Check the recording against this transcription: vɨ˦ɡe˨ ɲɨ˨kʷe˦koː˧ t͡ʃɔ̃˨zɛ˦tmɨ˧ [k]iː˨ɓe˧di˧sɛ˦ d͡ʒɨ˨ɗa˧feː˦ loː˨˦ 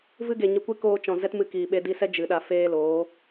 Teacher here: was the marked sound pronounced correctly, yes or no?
yes